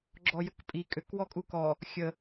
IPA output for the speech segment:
ɡ͡ǁ ɔ j ə k pʼ i kʼ ø k w ɔ kʼ u k ɔ | xʲ ə

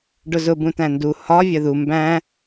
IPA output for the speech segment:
ɖ ʊ z ʊ b ũ t æ̃ n d u h ɒ vʲ ə ð u m b æ̃

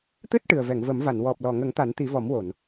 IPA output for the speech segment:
t̪ ɨ˦˥ t̚ ʈ ɨ˨˩ ə̯ v ɛ˨˩˨ ŋ v ə˨˩˦ m v a˨˩˨ n w ɔ˨˩ p̚ l ɔ˨˩ ŋ ə˨˩˦ ŋ t̪ a˨˩˦ n t̪ i˨˩˦ v ɔ˨˩˦ m w o˨˩˨ n

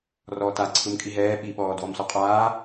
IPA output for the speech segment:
r ɔː t a ǀʰ ɯ m kʼ i ɦ ɛː ɓ i ɓ ɔː d w ɔ m s ɔ qʼ aː

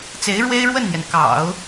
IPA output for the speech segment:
t͡s e˧˥ ɪ̯ ɻ w e˥ ɪ̯ ɻ w ə˥˩ n n̪ j ɛ˩ n k ɑ̰˨˩˦ ʊ̯

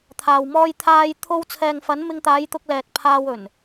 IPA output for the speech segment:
t̪ʰ aː˨ w m ɔː˧ j t̪ʰ aː˧ j t̪ʰ o˧ w t͡sʰ ɛː˨ ŋ f ɐ˨˥ n m ɪ˧ ŋ t̪ aː˨˧ j t̪ ʊ˧ k̚ l ɛː˨ t̚ pʰ aː˧ w ɵ˨˩ n

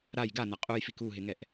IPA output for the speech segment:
ɾ a j ɡ a n ɐ qʼ u j f i k u ɦ ɪ ŋ ɛ ʔ

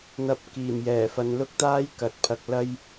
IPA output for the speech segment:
n̪ ɐ˨ p̚ k iː˨˩ m j ɛː˨˩ f ɐ˨˧ n l ʊ˥ k̚ t̪ aː˥ j k ɐ˨ t̚ pʰ ɐ˧ k̚ l ɐ˥ j

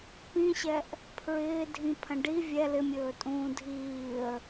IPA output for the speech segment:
p ĩ ɕ ɛ ʔ | pʰ ɹ ɪː dʱ ĩ pʰ ɐ̃ ɖ i vʲ ɛ l ɪ mʲ ɵː tʼ ũː dʱ iː ə̯

